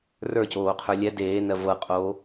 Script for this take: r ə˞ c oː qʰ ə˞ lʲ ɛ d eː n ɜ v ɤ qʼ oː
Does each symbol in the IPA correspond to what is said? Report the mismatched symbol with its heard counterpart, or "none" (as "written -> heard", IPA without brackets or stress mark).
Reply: none